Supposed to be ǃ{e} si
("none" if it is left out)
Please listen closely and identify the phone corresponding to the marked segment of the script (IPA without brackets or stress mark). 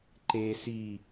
e